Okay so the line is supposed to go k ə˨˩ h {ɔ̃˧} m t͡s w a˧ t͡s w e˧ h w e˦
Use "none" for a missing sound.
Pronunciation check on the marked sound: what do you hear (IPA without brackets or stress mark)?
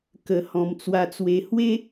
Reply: ɔ̃˨˩